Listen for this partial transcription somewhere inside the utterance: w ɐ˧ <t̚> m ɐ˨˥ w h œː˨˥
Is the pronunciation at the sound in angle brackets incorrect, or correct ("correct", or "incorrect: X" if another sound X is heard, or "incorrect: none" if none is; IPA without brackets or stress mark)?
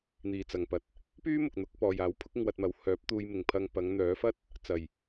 correct